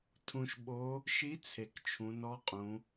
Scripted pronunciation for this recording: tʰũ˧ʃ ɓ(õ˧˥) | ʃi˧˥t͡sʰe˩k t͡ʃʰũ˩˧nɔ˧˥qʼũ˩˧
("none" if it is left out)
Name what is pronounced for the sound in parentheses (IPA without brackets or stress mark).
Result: o˧˥